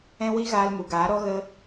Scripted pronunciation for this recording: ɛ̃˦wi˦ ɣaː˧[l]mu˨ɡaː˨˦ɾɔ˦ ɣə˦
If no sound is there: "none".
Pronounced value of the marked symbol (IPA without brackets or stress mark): l